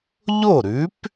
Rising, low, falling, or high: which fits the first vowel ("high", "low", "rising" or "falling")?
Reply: falling